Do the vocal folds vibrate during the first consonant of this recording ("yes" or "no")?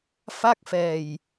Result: no